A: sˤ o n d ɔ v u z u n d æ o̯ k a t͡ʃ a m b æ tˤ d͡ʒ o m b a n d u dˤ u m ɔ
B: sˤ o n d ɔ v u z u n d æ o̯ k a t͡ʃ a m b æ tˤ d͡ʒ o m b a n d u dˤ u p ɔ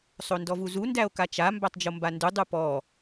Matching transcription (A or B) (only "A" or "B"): B